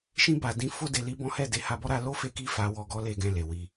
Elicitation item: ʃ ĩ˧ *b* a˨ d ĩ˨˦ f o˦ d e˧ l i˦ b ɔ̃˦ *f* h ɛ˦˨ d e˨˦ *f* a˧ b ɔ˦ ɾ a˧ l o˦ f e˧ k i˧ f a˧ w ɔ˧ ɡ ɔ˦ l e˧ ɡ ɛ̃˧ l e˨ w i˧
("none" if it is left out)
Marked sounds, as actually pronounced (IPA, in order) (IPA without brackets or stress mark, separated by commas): b, none, h